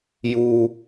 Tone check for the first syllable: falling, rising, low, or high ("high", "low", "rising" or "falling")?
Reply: low